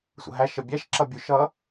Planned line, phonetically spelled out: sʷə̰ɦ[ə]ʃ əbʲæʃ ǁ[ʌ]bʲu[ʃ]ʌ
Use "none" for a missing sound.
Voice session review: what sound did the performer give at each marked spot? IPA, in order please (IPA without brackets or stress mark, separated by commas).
æ, ʌ, ʃ